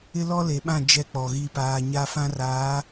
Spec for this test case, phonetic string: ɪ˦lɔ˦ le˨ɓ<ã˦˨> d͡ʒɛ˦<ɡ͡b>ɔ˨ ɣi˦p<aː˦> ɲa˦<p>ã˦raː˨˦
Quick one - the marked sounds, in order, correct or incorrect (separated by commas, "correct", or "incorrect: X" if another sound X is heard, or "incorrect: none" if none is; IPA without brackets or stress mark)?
correct, incorrect: k͡p, correct, incorrect: f